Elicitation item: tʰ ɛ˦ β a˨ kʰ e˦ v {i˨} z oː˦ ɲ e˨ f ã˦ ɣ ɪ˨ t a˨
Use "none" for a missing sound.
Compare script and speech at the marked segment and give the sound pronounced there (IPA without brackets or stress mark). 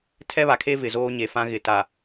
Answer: ɪ˨